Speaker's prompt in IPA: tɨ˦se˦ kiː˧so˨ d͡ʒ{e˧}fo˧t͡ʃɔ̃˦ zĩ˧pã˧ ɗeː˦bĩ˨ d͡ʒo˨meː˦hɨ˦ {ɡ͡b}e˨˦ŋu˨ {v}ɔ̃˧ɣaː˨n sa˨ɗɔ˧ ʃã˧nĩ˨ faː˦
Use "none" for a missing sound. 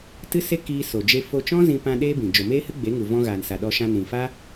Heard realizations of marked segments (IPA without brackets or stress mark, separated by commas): e˧, ɡ͡b, v